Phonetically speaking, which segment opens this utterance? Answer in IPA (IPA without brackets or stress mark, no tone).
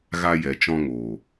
ɣ